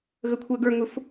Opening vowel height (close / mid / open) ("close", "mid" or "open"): mid